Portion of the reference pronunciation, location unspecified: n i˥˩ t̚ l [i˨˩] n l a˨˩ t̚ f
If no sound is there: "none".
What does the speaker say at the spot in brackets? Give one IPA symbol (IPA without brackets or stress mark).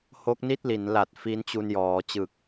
i˩˦